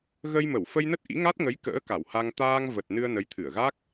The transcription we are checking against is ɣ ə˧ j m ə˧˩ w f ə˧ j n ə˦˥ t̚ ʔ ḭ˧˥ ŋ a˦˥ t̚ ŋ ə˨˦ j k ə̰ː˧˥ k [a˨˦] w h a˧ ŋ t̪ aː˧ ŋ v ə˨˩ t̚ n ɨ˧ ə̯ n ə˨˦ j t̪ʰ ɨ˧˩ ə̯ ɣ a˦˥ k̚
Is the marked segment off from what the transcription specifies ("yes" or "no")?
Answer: yes